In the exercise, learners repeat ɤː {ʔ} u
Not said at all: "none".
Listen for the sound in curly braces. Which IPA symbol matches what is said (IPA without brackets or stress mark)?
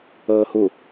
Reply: h